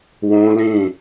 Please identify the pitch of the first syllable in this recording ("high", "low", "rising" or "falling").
high